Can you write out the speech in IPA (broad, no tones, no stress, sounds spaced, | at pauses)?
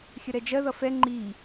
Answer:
xʲ ə ɾ ɛ d͡ʒ ɜ ð ʌ f ɛ ŋ͡ǃ i